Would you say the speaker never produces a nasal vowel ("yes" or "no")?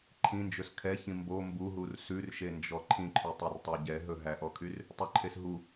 no